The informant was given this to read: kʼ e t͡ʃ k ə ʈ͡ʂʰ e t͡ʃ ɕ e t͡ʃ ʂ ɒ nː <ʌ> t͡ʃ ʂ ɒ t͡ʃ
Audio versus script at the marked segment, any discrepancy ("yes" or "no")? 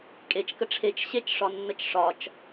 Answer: yes